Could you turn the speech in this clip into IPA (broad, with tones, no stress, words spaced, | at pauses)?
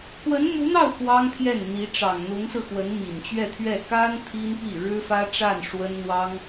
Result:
kwə˧˥nmu˧˥n̪ɑ˥˩ʊ̯ xwɑ˥ŋpʰjɛ˥˩nn̪i˧˥ ʈ͡ʂɑ˨˩ŋn̪ʊ˧˥ŋsɹ̩˧xwə˧˥n mi˨˩nt͡ɕɥɛ˥˧t̪ʰɥɛ˥˩ ka˥n t̪ʰi˥n pi˥˩ ɻɻ̩˥fä˥ ʈ͡ʂa˥˩n ʂwə˥nn̪wɑ˥ŋ